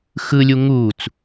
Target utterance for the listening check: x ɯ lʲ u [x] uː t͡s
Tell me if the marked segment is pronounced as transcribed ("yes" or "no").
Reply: no